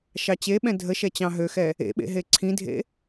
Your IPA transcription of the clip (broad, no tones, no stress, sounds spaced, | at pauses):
ʃ ɑ t͡ɕ e ɓ ɛ̃ dʱ ə ʃ ɛ t͡ɕ ɑ̃ ɦ ø x ɛ | ḛ ɓ ḛ ɦ e ǀʰ ĩ dʱ ḛ